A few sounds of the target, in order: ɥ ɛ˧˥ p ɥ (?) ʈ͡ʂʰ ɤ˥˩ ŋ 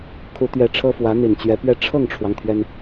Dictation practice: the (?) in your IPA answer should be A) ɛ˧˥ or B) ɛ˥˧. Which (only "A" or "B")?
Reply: B